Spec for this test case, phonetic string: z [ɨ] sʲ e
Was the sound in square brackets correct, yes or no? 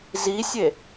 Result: no